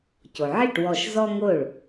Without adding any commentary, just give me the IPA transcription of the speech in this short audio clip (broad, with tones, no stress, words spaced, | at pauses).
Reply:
co˩ʕi˥˩ʈwɔ˧˩ʃ zɔ˥ŋo˥˩ɭ